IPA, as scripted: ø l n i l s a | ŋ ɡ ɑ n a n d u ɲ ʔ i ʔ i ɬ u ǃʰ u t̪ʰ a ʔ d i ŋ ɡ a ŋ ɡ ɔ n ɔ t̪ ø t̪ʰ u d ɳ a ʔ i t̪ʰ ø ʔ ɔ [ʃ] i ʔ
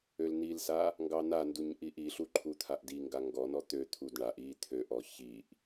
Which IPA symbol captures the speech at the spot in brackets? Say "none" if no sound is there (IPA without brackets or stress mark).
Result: ç